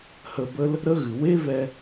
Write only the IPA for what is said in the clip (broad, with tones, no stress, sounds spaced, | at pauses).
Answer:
h ə˧ b ə˦ l | ɾ ə˦ ɣ ɨ˨ w e˦ v ɛ˧